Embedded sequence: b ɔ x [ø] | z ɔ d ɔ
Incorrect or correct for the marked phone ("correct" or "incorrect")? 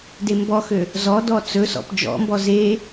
correct